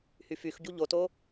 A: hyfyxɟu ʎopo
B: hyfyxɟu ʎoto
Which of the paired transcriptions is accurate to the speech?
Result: B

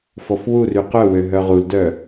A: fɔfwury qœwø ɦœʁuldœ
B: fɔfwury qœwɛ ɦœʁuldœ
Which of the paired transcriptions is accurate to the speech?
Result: A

